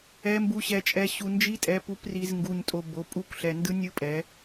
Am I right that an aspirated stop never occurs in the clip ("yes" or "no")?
yes